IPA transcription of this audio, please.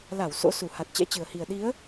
la˧˩w so̰˧˥su˧˩ ha˨˩t̚t͡ɕɛ̰˧˥t͡ɕɨ˨˩ə̯hi˨˩ə̯ ɗi˨˦ə̯

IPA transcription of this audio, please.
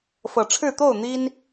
fɤ˨˩ʈ͡ʂʰɻ̩˥˨ t̪o˥˨ʊ̯ n̪i˦n

